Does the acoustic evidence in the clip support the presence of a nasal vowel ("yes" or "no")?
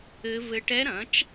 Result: yes